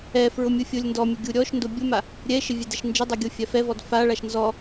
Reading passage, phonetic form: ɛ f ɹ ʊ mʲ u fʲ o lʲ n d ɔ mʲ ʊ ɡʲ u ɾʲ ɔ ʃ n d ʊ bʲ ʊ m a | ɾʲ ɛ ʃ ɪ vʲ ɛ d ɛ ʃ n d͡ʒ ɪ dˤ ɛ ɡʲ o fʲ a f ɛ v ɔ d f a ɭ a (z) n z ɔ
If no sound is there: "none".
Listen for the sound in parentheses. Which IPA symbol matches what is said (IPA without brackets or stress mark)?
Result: ʃ